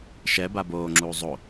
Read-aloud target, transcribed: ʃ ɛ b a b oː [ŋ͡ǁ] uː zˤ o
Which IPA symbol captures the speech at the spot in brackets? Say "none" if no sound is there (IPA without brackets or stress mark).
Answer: ŋ͡ǁ